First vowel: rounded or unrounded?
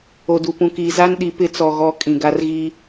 rounded